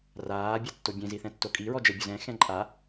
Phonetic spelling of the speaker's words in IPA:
r aː bʲ a tː o bʲ ẽ z i θ ɛ̃ tː o kʼ i ɹ ɔ d͡ʒ ɛ bʲ ʊ z ɛ̃ x ɛ̃ ǃʼ a

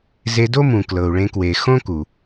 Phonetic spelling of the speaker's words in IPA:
z e˧ d o˥ m ũ˩ k l ɤ˩ u̯ ɭ ẽ˧ k w e˩ x õ˥ k u˩

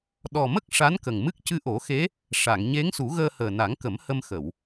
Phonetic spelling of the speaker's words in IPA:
ɗ ɔ˨˩ m ə˦˥ k̚ ʂ a˧˥ n k ə˨˩ ŋ m ɨ˦˥ k̚ c ɨ˧ ʔ o˨˩˦ x e˧˥ | ʂ a˨˩˨ ŋ ɲ e˧˥ ŋ s u˨˩˦ ɣ əː˧ h əː˨˩ n a˨˩˦ ŋ k ə˨˩˦ m h ə˧ m x ə˨˩˨ w

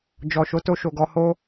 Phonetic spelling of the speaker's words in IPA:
d͡ʒ ɔ˨ ʃ o˨˦ t o˧ ʃ o˨ ɡ ɔ˧ h o˦

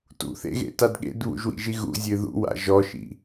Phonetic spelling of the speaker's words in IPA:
t ṵ θ ḛ ɣ ḛ t a d ɠ ḛ d β ṵ ʒ w ḭ ʒ i ɣ ṵ zʲ ɨ ð ṵ w a̰ ʒ ɔ ʃ ḭ

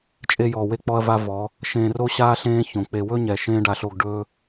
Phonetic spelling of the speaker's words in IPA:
t͡ʃʼ e˧ j ɔː˨ w e˧ k͡p ɔ˧ ɐ̯ v a˦ v ɔ˨˦ | ʃ ẽː˧ r o˦ ɕ aː˦ ɬ ẽː˦ ç õ˨ k͡p e˨ w ɵ˦ ɲ ɛ˨ ʃ ẽː˦ ɖ a˧ ɬ o˧ ɡ ɖ ɵ˦

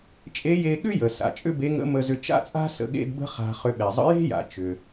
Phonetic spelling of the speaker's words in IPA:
t͡ʃʼ e˧˥ j e˧ ɠ ʏ˥ j ə˩ s a̰˩ t͡ʃʼ ʏ˥ b e˧˥ ŋ ə̰˧˥ m ə˧ z ʏ˧ t͡ʃ a̰˥ t͡sʼ a̤˥ s ə̰˩˧ ɠ ḛ˧ d b ə̤˥ χ a̤˧ χ ʏ˧ ɓ e˩ zˤ ə̰˧˥ j e̤˥ j a̰˩ t͡ʃ ʏ˩

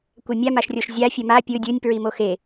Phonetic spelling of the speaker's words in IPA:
kʷ ɛ mʲ a m a ʃ rʲ o ʃ zʲ a fʲ ɛ m a pʲ ɯ dʲ ɯ nʲ p ɹ i m o x e

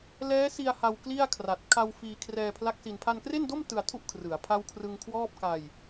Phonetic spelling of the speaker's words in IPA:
l ɛː˦˥ s i˧ a̯ h a˧ w k l i˥˩ a̯ kʰ r a˨˩ t̚ kʰ a˧ w f iː˧ kʰ r ɛː˧ pʰ l a˦˥ k̚ s i˧ n pʰ a˧ n k r e˥˩ n d o˥˩ m t ɯ˧ a̯ tʰ u˥˩ ʔ kʰ r ɯ˩˦ a̯ pʰ a˥˩ w kʰ r ɯ˧ ŋ kʰ w ɔː˥˩ p̚ k a˧ j

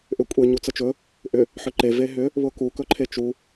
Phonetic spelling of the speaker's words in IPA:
ʔ ʏ kʷʼ e ɲ u t͡s ə t͡ʃ ɵ | ʔ ʏ | ħ ʏ ǃ e v e ɦ ʏ | β ʊ k u k ɵ ǃʰ e t͡ʃ u

